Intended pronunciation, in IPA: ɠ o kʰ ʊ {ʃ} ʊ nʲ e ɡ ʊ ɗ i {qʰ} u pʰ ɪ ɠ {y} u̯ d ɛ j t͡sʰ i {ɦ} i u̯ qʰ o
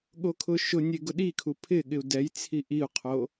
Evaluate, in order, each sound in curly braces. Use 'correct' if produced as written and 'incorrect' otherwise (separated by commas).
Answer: correct, incorrect, incorrect, incorrect